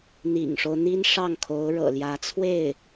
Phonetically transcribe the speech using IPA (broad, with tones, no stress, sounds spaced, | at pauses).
n̪ ḭ˨˩ ŋ ʂ o˦ ʊ̯ n̪ i˥ n ʂ ɑ˥˩ ŋ kʰ o˧˥ ʊ̯ ɻ ɤ̰˨˩ l j ä˧˥ t͡sʰ w e˥˩ ɪ̯